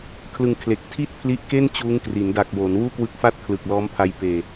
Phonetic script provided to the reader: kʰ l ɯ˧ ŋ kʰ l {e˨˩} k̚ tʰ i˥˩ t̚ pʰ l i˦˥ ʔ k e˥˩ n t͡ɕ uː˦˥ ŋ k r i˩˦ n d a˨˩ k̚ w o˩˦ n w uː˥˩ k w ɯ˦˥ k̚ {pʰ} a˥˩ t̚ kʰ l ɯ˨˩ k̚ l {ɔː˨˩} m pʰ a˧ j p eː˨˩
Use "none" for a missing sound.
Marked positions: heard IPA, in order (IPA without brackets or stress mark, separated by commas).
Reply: e˨˩, f, ɔː˦˥